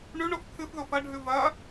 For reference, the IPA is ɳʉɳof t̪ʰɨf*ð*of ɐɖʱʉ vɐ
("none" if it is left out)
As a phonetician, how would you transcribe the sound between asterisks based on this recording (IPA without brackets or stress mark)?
ð